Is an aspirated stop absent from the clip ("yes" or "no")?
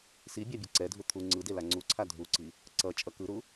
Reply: no